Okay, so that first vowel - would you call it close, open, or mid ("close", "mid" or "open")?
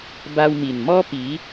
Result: open